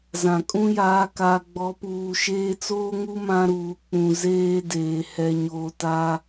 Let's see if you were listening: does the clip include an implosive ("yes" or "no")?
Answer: no